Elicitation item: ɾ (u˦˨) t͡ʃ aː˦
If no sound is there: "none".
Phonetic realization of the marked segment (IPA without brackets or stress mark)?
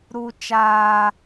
u˦